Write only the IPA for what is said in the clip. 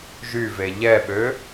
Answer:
ʒ y v e ʎ ɛ ɓ ø

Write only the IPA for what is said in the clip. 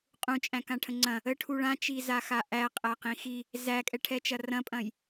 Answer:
qʼ ũ t͡ʃʼ æ̃ k ã ʈʰ ə̃ ŋ͡ǀ ɐ̃ | ə ʈʰ u ɭ ã t͡ʃ i z a x a ʔ æ qʼ æ q ĩ x i | z æ kʼ ɛ ʈʰ ɛ t͡ʃ ɐ r ɐ̃ pʼ ɐ̃ j

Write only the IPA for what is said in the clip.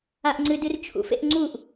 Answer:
a ʔ ŋ͡ǀ ɨ d ɨ r t͡ʃʰ ṵ f ḛ ʔ ŋ͡ǀ u ʔ

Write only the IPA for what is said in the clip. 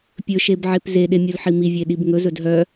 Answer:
pʲ ɵ ʃ e b ʕ e p z e ɗ e mʲ u l ħ i m i vʲ e ɗ i b ŋ ɵ z ɵ d ɦ œ

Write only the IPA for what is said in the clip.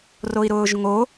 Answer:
r o i̯ ɾ ʊː ʒ ŋ o

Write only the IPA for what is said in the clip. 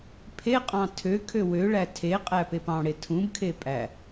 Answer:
pʰ e qʼ ɑ̃ tʰ ø kʰ ø w ø ɭ æ tʰ e qʼ æ p e p ɑ̃ ɽ e tʰ ũ b kʰ e pʼ æ

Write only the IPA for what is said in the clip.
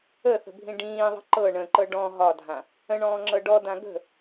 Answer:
ə θ ə̤ bʱ ĩ ɖ ĩː ðˤ ə̤ ǃ ɤ ɳ ə̃ ǃ ɤ ɖ ɔ̃ ɦ ɒ dʱ ã | ə̃ ɳ ɔ̃ː ŋ͡ǁ ɤ ɖ ɔ d ã ɡ ə̤

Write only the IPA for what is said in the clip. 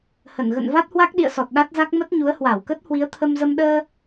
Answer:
h ə˧˩ n ɣ ə̰˧˨ n v a˦˥ t̚ h w a˦˥ k̚ ɗ ḭ˧˨ ə̯ s ɔ˨˩ t̚ ɗ a˦˥ t̚ z a˦˥ k̚ m ə˦˥ t̚ ɲ u˨˦ ə̯ h w a˧˩ w k ə˦˥ t̚ h w i˨˦ ə̯ t̪ʰ ə˧ m z ə˧ m ɗ əː˧

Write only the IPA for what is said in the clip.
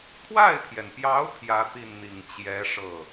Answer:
t̪ʰ w a˥˩ ɪ̯ pʰ j ɛ˩ n p j ɑ˧˥ ʊ̯ t̪ʰ j ä˥ t̪ i˥˩ n n̪ i˨˩ ŋ t͡ɕ j ɛ˧˥ ʂ ɤ˥˩

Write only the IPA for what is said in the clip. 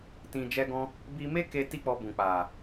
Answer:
t ĩ˧ d͡ʒ ɛ˦ ɡ ɔ̃˦ | b i˧ m e˦ k e˧ t i˦ k͡p ɔ˧ b ũ˨ k͡p a˨

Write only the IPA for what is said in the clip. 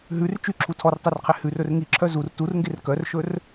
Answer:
ɦ ʉ r t͡ʃ y ǁʰ u tʰ ɔ r tˤ e r qʰ e h ʉ r ɵ r ŋ i ǁʰ œ z u r t u r ŋ ɡ e r k œ r ʃ ɵ r

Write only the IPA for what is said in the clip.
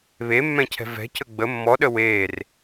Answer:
β e mː ɛ̃ cʰ ɛ̤ v ɛ̤ c ə ɡ͡b ə mː ɔ ɗ ə w eː r

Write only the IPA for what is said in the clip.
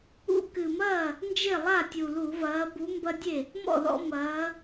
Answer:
ṵ˦ k ɨ˨˩ m ɐː˥˩ | n d͡ʒ e˥˩ lˠ a˥˩ tʲ u˨˩ l u˧˩˧ v ɐː˨˦ b u˨˦ m b ɐ˦ dʲ e˥˩ | m ɔ̰˥˩ ð ɔ̰˦ m ɐː˨˦

